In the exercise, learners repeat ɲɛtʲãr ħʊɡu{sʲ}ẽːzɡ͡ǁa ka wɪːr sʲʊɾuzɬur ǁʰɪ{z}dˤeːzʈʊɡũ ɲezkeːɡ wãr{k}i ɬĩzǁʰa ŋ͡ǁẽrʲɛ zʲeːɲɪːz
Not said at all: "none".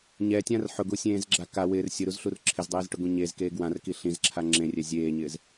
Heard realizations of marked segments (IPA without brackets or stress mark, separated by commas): sʲ, z, k